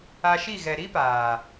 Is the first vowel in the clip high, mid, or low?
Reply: low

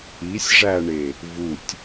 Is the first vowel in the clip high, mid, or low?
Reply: high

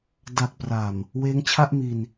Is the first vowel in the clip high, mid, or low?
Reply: low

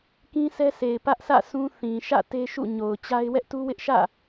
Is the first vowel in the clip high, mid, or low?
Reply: high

